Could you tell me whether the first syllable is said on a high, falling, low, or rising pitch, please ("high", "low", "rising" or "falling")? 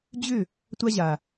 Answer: falling